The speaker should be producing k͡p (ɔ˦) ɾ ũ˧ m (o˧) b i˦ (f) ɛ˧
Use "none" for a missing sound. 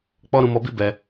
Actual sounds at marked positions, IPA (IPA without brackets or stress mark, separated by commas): ɔ˦, ɔ˧, b